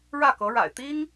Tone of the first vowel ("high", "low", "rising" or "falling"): falling